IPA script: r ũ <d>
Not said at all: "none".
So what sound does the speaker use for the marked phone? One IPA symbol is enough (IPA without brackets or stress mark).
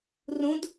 d